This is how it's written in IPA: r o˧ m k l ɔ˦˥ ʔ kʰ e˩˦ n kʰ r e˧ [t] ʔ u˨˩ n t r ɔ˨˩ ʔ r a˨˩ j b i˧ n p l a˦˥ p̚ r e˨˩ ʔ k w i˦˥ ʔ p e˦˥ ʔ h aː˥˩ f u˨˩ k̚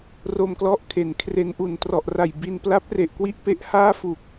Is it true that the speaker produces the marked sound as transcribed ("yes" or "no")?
no